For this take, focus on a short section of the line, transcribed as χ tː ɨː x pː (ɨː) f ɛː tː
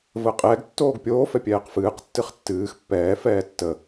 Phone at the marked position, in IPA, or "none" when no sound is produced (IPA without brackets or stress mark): ɛː